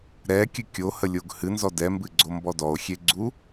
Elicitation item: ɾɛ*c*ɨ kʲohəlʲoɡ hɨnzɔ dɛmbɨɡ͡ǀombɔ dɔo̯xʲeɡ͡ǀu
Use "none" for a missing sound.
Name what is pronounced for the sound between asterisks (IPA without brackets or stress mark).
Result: kʲ